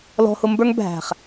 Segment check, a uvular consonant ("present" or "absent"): present